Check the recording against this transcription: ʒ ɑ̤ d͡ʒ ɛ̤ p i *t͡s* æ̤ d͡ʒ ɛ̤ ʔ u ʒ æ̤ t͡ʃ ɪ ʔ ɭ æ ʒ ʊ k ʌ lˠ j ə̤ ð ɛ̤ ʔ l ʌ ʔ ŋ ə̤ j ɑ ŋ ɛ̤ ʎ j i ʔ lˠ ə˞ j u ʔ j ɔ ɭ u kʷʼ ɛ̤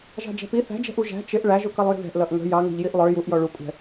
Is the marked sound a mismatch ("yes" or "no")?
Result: yes